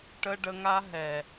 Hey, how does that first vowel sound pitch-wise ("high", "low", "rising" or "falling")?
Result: high